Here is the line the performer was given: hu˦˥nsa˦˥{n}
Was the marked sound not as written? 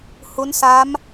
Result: yes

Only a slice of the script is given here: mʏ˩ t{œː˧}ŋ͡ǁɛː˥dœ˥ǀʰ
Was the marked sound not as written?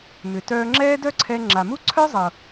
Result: no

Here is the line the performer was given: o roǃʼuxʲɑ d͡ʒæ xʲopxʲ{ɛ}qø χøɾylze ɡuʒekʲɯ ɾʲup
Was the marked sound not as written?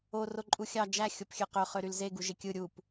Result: yes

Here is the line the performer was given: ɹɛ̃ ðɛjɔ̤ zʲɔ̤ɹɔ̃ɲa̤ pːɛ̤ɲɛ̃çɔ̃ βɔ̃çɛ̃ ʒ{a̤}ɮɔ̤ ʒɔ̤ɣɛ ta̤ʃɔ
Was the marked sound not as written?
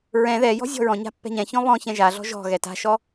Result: yes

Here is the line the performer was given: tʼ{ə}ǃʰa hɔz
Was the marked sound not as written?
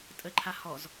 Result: no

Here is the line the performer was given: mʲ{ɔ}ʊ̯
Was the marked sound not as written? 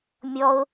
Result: no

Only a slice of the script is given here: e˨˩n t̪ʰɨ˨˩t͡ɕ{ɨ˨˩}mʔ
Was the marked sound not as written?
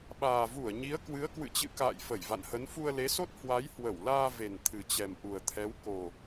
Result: yes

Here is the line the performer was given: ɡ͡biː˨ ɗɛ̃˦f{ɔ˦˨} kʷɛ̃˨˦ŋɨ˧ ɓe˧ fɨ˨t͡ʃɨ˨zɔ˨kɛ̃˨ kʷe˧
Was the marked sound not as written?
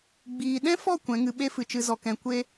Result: no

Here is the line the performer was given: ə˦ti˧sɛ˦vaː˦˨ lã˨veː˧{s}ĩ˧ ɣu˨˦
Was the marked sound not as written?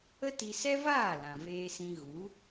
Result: no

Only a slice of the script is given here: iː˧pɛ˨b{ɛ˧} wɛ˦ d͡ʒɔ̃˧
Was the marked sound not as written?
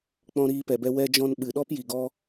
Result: no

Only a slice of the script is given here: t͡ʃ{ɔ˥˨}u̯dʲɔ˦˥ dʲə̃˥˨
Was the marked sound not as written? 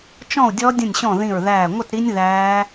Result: yes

